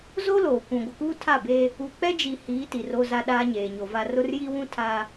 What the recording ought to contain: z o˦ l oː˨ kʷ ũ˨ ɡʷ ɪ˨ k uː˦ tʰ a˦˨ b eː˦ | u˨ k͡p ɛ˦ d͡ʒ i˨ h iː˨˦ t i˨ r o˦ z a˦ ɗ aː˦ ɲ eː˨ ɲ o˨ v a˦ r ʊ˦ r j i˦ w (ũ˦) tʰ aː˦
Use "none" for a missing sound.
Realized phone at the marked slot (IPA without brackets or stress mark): ũ˦